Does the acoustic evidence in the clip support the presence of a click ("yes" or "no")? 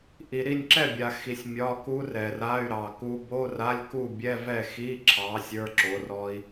yes